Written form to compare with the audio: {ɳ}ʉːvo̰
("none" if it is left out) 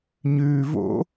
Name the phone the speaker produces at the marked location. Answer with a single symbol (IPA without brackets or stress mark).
ɲ